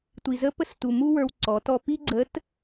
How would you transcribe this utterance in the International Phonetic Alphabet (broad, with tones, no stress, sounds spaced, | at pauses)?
tʷ i˩ z ə˧˥ p ə˧ s t u˩ m u˥ w ə˞˧ w ǀ ɔ˩˧ t ɔ˧ p i˥ ɡ͡ǀ ə˧˥ t